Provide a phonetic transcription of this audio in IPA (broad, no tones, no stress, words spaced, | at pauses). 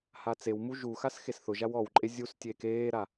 hat͡sewmu ʒuxas xesθʊʒaw ɔwǃʼe zʲustʲeːk eːɾa